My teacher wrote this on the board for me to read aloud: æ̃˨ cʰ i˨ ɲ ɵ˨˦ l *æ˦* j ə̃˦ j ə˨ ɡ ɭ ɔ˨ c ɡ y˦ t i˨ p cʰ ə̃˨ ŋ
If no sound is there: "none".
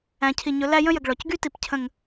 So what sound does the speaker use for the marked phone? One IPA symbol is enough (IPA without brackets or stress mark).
æ˦